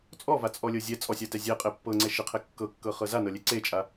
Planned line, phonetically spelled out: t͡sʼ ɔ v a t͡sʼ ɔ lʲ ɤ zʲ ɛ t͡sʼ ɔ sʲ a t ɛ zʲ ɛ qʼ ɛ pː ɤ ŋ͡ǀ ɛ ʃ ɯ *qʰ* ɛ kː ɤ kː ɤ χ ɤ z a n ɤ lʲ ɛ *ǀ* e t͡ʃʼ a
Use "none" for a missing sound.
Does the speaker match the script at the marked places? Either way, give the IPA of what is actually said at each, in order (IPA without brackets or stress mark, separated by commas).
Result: qʰ, ǀ